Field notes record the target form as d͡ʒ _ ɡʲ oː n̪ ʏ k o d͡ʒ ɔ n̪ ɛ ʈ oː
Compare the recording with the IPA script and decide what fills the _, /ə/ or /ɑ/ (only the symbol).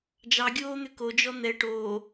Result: ɑ